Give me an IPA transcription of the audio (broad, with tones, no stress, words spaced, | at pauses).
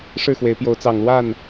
ʂɻ̩˥˨xwe˨˦ɪ̯pjo˨˦ʊ̯ t͡sɑ˨˩ŋlwa˥˨n